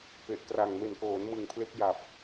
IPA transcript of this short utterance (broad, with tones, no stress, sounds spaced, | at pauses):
p e˨˩ ʔ k r a˨˩ ŋ m e˨˩ n k oː˩˦ n m ɯ˨˩ ŋ pʰ l e˦˥ k̚ j a˨˩ p̚